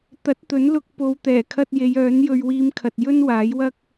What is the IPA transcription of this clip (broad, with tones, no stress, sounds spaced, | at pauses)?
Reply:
t̪ ɐ˨˥ t̚ t̪ ɵ˨˥ n l ʊ˧ k̚ p o˨˧ w t̪ ɛː˨˩ kʰ ɐ˧ t̚ j e˨˧ j œː˨˥ n j ɵ˧ ɥ w iː˧ m kʰ ɐ˨ t̚ j ɵ˥ n w aː˨˥ j w ɐ˥ k̚